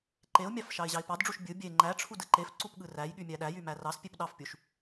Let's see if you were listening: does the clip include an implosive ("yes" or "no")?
yes